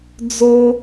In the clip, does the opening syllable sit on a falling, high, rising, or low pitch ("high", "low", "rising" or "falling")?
high